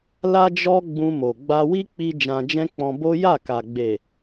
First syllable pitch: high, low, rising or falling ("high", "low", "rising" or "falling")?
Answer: high